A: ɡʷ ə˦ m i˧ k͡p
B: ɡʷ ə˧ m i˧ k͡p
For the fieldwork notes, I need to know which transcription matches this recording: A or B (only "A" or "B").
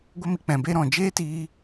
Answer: A